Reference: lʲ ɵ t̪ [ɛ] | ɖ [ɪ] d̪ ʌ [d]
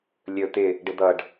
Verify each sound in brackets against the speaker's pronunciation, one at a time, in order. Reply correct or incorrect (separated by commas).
incorrect, correct, incorrect